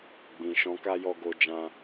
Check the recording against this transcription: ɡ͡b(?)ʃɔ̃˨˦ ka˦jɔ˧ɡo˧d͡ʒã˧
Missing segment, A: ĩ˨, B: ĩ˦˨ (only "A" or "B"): A